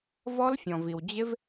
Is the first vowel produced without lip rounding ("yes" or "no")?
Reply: no